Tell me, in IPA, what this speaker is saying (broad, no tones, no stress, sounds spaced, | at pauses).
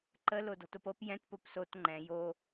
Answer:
ǃ ə l o d ɔ̤ t o p ɤ p j ɛ̃ t p o p s o t ŋ͡ǃ ɛ̃ j o